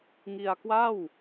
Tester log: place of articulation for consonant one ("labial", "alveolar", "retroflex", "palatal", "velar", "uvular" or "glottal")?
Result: velar